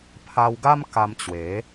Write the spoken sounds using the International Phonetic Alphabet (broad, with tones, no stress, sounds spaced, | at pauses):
pʰ a˧ w ɡ a˦ m k a˧ m t͡ɕ w e˨˦